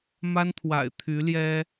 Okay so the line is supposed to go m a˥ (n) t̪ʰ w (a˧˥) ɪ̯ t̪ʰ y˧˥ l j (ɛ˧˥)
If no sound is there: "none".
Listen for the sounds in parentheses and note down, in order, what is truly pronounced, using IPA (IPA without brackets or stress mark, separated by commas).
n, a̰˨˩, ɛ˥